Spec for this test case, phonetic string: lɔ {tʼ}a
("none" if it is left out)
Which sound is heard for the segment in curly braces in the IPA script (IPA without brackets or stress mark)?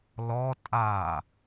tʼ